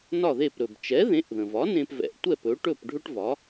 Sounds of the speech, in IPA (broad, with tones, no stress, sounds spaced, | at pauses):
n ɒ˥˩ ð e˥˩ p ɾ ɵ˩ b t͡ʃ ɛ˩˥ ð ẽ˩˥ ʔ ð ə̃˩ v ɒ˩˥ n ẽ˧ p v ɛ̰˩˥ ʔ tʷ ɛ˥˩ p ɵ˩˥ ʈ ɵ˥˩ p ɖʱ ɵ˥ ʈ v ɒ˩˥